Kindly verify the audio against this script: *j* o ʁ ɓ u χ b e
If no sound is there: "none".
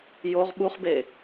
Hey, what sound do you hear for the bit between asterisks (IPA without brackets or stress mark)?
j